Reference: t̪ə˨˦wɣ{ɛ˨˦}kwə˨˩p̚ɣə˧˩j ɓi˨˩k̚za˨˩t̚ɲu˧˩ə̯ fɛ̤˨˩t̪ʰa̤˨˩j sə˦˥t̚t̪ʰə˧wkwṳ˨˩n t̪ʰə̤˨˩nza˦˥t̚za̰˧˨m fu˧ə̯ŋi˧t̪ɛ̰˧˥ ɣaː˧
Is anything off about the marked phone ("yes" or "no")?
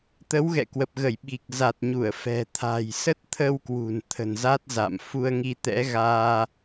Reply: yes